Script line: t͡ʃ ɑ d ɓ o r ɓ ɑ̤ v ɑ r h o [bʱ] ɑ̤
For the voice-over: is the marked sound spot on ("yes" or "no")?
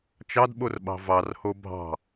yes